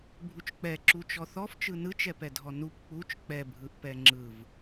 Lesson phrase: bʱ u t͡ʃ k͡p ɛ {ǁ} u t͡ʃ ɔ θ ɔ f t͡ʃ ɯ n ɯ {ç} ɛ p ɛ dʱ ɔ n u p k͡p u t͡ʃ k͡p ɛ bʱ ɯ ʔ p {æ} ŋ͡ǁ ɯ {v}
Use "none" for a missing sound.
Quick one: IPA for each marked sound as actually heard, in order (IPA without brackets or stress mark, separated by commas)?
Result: ǁ, t͡ʃ, ɛ, v